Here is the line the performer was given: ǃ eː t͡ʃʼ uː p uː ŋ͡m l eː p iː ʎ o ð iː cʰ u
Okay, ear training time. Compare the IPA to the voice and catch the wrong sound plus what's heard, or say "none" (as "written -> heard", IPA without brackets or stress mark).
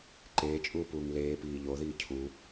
ŋ͡m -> ŋ